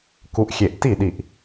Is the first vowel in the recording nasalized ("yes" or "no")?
no